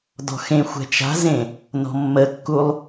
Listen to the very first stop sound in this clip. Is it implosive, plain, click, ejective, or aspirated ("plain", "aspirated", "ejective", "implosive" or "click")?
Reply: plain